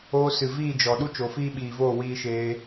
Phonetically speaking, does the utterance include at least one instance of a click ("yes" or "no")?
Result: no